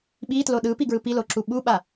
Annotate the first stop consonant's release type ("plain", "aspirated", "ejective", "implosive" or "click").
implosive